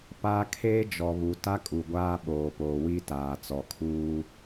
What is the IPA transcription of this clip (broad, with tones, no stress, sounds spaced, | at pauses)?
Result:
p a˦ kʰ eː˦ d͡ʒ ɔ˨ β u˨ t a˦ kʼ u˨ ɡʷ aː˦ ɓ oː˨ p oː˨ w i˦ t aː˨ t͡s ɔ˨ kʰ uː˦